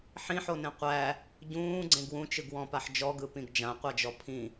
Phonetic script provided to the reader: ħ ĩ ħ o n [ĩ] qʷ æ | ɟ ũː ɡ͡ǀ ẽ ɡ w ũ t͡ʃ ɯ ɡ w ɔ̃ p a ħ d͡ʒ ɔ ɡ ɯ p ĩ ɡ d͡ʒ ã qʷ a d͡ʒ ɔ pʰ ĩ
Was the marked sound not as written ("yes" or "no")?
yes